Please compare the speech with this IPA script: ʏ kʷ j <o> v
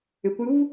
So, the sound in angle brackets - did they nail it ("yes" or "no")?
no